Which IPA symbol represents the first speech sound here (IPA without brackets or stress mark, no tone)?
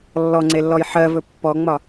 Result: lː